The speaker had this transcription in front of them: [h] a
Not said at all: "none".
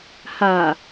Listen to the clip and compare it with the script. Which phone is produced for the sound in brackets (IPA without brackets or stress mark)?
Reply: h